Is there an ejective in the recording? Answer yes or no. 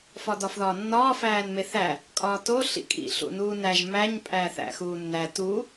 yes